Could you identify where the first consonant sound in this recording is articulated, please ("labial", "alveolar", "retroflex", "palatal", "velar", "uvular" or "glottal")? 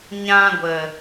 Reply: palatal